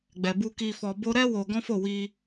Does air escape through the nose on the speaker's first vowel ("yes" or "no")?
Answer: no